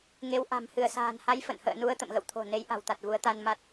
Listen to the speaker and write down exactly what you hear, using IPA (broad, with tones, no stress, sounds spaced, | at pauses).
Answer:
ŋ e˨˦ w ʔ a̤˨˩ m h ɨ˧˩ ə̯ s a̤ː˨˩ n h a˨˦ j f ə̰˧˨ n h ə̰ː˧˨ n u˧ ə̯ t̪ ə̰˧˨ m ɣ ə̰˧˨ w t̪ʰ o̤˨˩ n e˨˦ j ʔ a̤˨˩ w t̪ a˨˩ t̚ v u˨˦ ə̯ t̪ a˧ n m a˦˥ t̚